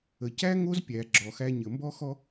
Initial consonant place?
palatal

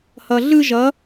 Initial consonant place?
glottal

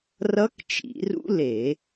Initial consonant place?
alveolar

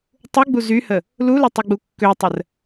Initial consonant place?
alveolar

